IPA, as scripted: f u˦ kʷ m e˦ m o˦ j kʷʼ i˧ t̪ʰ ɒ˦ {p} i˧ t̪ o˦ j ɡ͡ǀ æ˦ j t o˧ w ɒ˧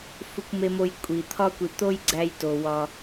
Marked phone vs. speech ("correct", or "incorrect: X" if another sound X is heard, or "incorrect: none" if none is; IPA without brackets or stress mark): incorrect: kʷ